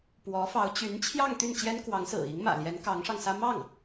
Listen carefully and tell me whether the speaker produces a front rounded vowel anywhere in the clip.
yes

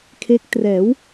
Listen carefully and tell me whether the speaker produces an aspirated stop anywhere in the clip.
yes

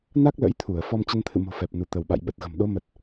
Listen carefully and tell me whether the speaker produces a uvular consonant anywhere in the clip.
no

